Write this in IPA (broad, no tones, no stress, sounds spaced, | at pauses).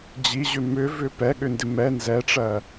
d͡ʑ i ʑ ʏ m ʏ v ʏ p ɛ ɠ ʏ n d ɪ m ɛ n z ɛ ʈ͡ʂ ɜ